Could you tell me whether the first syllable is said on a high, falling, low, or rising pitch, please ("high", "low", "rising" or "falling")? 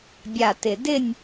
low